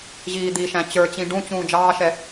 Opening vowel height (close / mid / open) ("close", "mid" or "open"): close